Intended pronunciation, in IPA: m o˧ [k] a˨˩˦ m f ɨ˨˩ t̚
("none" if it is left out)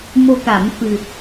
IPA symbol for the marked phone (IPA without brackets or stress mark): k